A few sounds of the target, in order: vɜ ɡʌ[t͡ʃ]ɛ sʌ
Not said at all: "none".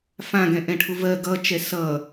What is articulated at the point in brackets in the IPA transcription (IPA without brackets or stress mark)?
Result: t͡ʃ